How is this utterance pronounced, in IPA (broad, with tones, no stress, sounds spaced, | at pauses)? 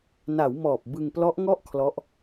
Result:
n a˩˦ w m ɔː˨˩ p̚ b ɯ˧ ŋ p l ɔ˦˥ ʔ ŋ ɔ˥˩ ʔ kʰ l ɔ˦˥ ʔ